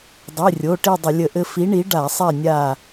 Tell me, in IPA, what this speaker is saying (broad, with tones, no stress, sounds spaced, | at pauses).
dˤ i˩˧˩ rʲ o˩˧˩ ʈ i˦˨ dˤ ə˧˩˧ lʲ ə˧˩˧ ʔ ɘ˦ f i˨˥ ɳ i˨˥ ɖ a˧˩˧ sˤ ɛ˦˨ nʲ a˦˨